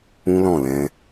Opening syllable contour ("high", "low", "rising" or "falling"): high